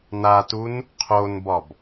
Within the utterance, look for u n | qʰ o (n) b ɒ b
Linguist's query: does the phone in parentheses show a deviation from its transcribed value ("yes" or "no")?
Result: no